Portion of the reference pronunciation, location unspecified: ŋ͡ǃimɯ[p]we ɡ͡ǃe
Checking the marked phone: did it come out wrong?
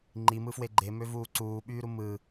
yes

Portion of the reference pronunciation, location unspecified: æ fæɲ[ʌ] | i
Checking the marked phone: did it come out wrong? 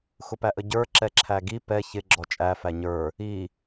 yes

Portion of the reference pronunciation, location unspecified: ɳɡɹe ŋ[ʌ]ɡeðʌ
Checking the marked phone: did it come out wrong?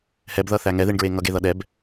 no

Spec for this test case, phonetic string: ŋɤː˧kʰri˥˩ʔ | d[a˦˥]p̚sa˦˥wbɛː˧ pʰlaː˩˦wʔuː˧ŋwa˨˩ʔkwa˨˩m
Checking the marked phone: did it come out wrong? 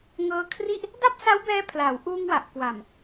yes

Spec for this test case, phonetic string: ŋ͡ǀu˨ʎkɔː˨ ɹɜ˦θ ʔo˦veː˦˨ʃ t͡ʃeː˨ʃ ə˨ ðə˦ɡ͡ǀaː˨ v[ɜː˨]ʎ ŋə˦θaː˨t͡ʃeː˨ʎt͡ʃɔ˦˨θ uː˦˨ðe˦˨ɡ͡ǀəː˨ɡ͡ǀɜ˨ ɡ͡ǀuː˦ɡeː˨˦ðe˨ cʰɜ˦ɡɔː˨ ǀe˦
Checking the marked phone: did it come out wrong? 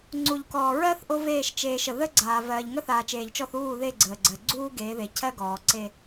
no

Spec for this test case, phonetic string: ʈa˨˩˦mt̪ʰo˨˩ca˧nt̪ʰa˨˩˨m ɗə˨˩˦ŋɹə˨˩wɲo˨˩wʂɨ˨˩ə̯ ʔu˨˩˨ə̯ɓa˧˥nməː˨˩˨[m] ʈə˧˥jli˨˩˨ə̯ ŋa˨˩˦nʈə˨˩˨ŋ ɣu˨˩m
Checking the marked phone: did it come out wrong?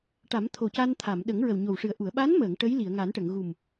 yes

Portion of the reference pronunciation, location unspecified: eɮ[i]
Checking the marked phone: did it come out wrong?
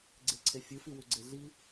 no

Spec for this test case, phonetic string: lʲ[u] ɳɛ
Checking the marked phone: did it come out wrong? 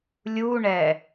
no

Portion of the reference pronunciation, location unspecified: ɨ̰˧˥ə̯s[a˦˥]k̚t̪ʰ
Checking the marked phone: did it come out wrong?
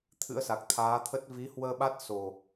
yes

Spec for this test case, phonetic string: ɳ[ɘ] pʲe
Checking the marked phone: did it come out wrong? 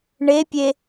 yes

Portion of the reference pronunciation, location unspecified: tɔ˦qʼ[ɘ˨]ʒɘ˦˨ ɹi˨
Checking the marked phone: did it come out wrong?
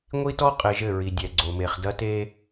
no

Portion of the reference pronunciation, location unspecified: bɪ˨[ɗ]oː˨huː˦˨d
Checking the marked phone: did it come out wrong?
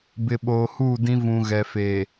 yes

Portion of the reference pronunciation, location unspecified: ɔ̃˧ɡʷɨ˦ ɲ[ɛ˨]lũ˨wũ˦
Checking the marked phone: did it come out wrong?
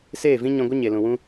yes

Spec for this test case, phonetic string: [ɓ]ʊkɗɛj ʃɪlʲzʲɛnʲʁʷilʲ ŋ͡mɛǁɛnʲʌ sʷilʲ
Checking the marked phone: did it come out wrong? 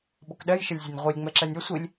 no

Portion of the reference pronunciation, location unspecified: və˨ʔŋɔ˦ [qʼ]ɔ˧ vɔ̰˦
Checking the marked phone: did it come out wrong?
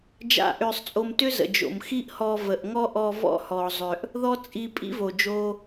yes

